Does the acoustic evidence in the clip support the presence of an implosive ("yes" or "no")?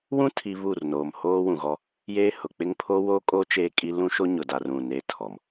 no